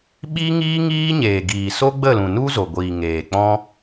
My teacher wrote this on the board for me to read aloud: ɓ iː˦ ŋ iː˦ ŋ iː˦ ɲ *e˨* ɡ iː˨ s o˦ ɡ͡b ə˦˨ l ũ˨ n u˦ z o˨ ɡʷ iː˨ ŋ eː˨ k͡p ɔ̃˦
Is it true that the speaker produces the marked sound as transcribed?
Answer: no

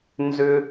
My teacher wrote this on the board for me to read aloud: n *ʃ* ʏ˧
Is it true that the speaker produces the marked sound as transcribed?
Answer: no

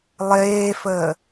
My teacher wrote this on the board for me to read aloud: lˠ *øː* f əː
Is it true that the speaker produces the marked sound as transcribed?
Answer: no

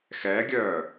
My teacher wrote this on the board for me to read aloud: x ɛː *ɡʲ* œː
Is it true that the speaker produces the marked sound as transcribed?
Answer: yes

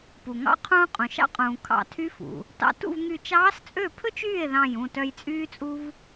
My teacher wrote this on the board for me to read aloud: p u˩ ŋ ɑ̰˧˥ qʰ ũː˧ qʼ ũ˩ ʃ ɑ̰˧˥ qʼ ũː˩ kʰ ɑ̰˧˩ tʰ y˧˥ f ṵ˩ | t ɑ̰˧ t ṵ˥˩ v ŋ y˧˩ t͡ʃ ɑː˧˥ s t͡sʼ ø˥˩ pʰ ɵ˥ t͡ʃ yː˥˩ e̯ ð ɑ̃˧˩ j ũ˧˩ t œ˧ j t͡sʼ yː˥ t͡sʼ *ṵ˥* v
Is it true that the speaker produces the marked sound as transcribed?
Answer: no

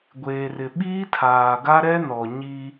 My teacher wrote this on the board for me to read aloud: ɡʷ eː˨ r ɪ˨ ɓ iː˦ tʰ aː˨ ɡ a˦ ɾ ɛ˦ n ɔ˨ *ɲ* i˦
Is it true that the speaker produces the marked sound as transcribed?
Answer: yes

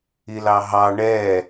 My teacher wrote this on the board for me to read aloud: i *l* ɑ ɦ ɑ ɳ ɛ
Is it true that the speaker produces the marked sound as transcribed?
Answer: yes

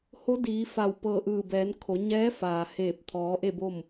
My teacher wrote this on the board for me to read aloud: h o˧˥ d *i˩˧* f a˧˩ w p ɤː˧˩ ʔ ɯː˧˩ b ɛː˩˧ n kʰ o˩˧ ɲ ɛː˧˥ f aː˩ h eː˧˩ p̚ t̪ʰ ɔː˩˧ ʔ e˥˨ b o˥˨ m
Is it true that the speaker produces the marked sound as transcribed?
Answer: no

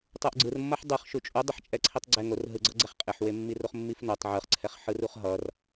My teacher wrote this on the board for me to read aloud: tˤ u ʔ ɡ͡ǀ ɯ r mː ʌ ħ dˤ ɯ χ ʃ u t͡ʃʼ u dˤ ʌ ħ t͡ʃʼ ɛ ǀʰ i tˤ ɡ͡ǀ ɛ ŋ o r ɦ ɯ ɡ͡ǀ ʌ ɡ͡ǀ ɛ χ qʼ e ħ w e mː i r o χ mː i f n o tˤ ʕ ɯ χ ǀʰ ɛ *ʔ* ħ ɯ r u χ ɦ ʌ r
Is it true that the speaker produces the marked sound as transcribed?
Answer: no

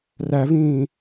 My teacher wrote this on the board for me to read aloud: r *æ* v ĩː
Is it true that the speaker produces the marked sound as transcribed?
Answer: yes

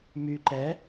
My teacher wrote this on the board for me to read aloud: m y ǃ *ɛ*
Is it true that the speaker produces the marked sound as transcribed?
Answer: yes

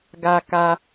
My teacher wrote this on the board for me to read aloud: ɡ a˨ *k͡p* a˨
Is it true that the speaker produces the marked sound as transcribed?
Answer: no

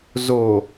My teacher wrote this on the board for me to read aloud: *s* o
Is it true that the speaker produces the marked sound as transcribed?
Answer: no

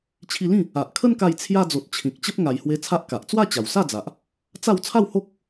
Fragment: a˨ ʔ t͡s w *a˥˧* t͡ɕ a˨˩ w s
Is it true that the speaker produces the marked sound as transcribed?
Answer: yes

